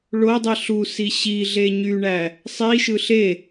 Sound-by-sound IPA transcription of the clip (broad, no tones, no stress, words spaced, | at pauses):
ɭodˤi ɬusi ɕiɮe ɲyɳæ | sˤiʃɯ ɬe